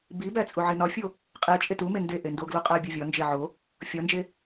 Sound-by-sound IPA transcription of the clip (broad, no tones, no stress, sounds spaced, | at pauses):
b i b æ t͡sʼ u ʕ i n ɒ fʲ o | qʼ e t͡ʃʼ e t u m e n d e ʔ e n d o ɡ l u qʼ æ bʲ o vʲ ɒ n d͡ʒ e ʕ o | fʲ ɒ n d͡ʒ e